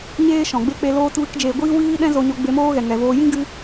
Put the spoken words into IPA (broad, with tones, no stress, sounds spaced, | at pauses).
ɲ eː˦ ʃ ɔ̃˨ ɡ͡b e˦ k͡p e˧ l oː˦ t v ɨ˦ k d͡ʒ eː˧ ɡʷ iː˦ w iː˦ ɗ ɛ̃˦ z o˧ ɲ o˧ ɡ͡b e˧ m oː˦ ɣ ɛ˨ ŋ ɛ˨ v oː˧ j ĩ˦ ɡ ɨ˧